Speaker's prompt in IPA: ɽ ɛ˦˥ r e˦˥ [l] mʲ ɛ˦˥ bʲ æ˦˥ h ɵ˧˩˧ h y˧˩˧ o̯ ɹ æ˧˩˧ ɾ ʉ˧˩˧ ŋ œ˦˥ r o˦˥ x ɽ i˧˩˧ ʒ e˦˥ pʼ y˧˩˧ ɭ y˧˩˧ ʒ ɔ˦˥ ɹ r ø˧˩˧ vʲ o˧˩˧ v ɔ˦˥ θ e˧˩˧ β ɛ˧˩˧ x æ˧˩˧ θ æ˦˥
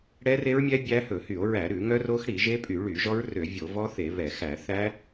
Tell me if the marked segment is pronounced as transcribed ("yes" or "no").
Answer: no